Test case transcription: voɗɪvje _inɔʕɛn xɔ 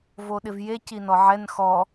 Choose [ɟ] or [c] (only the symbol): c